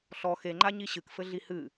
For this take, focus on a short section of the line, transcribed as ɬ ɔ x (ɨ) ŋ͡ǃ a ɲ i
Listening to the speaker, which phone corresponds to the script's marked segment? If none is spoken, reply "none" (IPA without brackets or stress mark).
e